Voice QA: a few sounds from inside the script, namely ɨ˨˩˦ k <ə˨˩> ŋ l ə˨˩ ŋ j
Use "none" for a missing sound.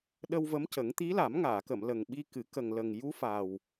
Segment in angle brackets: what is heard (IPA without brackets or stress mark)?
ə˨˩